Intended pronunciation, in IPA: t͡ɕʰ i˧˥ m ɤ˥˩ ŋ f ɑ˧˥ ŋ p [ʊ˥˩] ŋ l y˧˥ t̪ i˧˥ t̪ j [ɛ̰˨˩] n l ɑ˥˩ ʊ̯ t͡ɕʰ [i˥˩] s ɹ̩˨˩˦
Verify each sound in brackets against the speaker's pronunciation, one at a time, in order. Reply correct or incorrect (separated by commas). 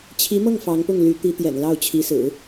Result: correct, correct, incorrect